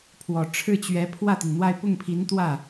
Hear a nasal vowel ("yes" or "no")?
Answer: no